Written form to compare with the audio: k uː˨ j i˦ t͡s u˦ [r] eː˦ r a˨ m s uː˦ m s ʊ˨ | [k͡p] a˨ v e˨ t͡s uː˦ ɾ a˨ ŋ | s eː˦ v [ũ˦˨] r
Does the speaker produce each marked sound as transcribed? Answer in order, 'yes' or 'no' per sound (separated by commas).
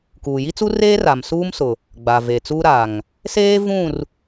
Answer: yes, no, yes